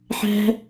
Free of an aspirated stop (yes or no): yes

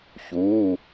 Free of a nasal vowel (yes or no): yes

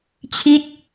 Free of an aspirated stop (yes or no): no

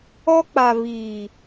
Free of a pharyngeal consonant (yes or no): yes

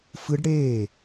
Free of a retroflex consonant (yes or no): no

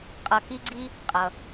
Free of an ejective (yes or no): no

